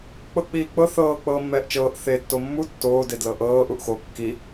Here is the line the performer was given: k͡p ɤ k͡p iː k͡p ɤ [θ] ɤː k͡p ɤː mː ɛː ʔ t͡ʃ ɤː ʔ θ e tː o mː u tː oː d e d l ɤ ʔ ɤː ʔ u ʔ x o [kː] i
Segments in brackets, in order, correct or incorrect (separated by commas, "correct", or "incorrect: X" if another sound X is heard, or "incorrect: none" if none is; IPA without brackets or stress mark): correct, correct